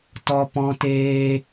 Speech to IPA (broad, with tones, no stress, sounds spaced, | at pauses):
t ɔ˦ p ɔ̃˦ t eː˦